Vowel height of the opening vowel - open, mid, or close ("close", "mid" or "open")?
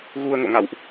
close